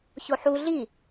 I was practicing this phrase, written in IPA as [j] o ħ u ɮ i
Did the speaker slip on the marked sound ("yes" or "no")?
yes